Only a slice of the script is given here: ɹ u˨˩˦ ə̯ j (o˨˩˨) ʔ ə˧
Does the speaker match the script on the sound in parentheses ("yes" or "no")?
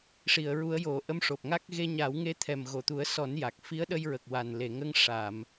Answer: yes